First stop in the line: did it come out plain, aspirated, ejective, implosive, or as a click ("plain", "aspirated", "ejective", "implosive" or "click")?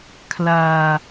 aspirated